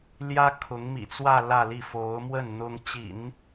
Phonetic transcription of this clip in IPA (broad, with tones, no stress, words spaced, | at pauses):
ljä˥ kʰʊ˧˥ŋmḭ˨˩t͡swä˥˧ lä˥˧li˥˩ fo˧˥ʊ̯ mwə˥˩n n̪ʊ˥ŋ t͡ɕḭ˨˩˦n